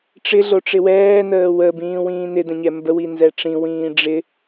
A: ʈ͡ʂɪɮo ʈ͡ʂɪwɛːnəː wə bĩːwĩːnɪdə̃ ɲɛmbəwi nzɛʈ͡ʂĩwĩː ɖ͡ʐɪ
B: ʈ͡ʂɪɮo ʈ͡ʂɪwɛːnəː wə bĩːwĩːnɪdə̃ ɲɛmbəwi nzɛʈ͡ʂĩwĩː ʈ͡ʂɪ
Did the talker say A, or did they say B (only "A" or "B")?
A